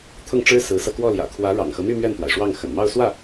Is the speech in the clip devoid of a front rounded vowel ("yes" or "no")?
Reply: no